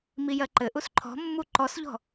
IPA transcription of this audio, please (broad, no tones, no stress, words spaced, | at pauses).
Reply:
mijɜǃɘʔus ǃʰɔ̤mːu ǃɔsʎɔ̤